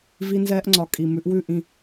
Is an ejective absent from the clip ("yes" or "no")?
no